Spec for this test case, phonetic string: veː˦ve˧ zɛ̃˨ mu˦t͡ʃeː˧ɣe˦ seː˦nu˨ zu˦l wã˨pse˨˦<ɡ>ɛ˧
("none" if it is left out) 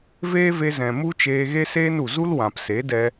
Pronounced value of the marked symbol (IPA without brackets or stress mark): d